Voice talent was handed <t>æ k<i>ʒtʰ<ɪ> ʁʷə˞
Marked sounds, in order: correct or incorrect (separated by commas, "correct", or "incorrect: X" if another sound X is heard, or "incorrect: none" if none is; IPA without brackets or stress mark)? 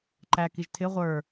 incorrect: ǃ, correct, correct